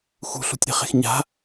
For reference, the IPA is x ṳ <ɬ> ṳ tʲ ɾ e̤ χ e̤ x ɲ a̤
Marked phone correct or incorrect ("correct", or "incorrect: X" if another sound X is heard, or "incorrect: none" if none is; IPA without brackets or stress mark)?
correct